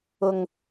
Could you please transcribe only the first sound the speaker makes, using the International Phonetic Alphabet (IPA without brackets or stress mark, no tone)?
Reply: ʊ